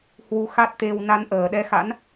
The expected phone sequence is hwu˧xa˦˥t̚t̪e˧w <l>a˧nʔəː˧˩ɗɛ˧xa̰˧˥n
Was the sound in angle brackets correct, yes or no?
no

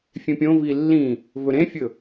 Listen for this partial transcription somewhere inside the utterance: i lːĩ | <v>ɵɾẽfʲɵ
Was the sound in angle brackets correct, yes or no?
yes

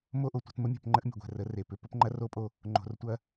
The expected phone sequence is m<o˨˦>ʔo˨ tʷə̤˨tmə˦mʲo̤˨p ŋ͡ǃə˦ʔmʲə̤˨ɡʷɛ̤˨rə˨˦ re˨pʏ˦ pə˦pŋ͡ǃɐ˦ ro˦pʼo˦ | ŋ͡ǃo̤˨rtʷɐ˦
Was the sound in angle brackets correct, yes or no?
no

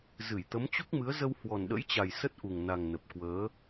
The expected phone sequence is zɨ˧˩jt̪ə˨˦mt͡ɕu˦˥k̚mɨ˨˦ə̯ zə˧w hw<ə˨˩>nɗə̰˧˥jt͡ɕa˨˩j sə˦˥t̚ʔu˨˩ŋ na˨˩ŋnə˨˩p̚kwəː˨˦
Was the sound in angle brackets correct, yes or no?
no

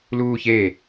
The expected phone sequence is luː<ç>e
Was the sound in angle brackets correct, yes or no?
yes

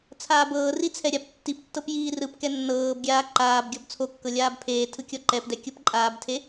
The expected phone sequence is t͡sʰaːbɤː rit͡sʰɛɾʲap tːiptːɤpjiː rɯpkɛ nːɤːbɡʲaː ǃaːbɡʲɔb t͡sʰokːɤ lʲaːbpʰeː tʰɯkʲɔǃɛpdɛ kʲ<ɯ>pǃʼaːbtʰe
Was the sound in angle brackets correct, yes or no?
no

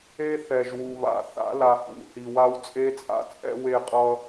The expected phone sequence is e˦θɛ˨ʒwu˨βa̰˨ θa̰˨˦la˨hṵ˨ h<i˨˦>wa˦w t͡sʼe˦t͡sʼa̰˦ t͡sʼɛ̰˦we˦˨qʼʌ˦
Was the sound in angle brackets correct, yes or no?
no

